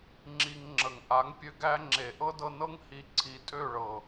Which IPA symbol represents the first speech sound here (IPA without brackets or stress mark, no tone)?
ŋ͡ǁ